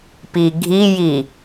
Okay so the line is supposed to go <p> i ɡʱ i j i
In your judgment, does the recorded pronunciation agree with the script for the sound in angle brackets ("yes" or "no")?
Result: yes